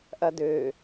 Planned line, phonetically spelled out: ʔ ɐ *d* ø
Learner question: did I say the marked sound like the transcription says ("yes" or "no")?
yes